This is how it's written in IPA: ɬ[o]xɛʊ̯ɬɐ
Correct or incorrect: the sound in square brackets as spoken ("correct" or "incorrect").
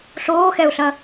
incorrect